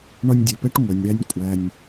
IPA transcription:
ɳ ɒ˧ nʲ dʲ ɛ˨ p ɛ˦ ʈ ŋʷ ɛ˨ nʲ ɽ æ˧ nʲ kʷʼ æ˧ nʲ

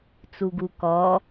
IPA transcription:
t͡s u ɡ u k ɔ

